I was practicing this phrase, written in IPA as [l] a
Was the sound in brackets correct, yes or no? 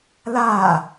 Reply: yes